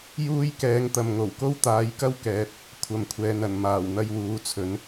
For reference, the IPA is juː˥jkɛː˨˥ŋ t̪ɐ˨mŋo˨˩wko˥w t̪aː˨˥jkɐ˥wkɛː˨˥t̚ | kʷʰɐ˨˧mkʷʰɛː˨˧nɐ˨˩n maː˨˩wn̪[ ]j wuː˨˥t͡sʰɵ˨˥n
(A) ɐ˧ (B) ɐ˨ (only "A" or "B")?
A